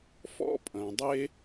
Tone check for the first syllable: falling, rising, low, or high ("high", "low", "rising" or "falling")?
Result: high